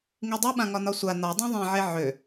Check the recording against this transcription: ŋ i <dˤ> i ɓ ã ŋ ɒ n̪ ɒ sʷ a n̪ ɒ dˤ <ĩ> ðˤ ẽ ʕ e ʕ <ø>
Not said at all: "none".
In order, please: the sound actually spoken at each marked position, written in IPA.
dˤ, ĩ, ø

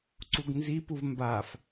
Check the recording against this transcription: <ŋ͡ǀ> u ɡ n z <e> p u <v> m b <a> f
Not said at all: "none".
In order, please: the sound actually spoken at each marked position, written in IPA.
ǀ, i, v, a

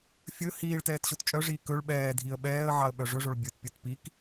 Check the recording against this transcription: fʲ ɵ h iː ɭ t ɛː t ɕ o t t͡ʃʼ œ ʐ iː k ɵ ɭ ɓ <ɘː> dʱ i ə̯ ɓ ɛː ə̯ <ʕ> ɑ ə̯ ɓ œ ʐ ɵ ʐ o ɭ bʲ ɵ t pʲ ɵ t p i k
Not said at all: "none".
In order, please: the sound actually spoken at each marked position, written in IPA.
ɛː, ʕ

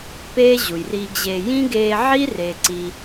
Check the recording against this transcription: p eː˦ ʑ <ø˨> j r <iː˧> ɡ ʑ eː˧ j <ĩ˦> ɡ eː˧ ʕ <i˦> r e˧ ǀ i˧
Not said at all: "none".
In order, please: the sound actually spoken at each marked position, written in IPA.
u˨, iː˧, ĩ˦, i˦

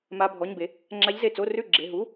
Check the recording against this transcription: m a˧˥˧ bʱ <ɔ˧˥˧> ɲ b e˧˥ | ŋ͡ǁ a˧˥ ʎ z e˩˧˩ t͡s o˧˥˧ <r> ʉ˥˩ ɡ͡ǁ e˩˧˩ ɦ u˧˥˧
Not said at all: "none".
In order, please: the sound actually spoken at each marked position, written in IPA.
ɔ˧˥˧, r

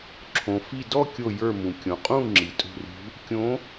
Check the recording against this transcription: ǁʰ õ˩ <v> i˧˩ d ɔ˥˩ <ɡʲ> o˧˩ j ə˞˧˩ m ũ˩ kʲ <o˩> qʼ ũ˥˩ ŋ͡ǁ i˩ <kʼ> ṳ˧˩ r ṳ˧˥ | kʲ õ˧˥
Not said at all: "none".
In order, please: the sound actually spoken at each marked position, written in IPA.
f, kʲ, õ˩, tʼ

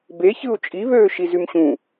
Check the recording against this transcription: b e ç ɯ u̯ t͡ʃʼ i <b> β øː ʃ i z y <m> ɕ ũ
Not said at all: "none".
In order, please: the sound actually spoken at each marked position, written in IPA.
none, m

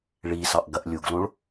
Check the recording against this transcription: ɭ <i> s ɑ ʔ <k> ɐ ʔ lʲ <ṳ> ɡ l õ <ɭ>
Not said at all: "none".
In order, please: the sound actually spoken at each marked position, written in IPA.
i, ɡ, u, ɭ

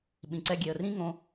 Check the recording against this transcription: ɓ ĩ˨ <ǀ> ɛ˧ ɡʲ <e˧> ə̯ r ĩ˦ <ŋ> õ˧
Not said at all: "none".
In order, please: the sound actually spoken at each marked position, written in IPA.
ǀ, e˨, ŋ

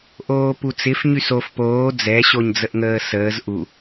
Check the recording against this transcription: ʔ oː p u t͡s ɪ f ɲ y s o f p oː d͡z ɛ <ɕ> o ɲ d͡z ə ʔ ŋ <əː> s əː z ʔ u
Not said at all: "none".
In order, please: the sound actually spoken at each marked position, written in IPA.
ɕ, əː

